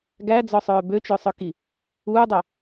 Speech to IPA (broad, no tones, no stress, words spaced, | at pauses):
ɡæd͡zɔsˤœː bøt͡ʃœsˤœki | uːdˤœ